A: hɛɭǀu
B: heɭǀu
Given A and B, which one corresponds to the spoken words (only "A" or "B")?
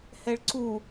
A